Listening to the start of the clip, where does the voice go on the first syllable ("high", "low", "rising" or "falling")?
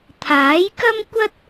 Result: rising